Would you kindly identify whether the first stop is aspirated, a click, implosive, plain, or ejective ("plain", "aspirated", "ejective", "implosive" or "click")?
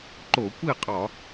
click